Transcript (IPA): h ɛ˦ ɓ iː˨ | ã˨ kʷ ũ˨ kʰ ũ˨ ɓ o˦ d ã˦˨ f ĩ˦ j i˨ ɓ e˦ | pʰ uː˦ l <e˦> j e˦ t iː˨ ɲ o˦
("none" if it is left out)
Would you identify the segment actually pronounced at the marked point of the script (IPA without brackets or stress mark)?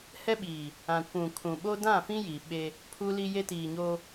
i˦